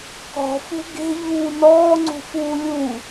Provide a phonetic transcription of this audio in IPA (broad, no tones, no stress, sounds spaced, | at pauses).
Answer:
k ɔ̤ f ṳ ɡ e̤ ʎ uː n ɔː ŋ͡ǀ ṳ f uː lʲ u